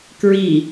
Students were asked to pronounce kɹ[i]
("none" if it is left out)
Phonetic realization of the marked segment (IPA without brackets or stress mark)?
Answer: i